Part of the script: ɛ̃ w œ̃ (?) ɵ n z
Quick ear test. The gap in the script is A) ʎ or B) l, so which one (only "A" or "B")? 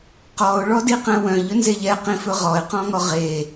A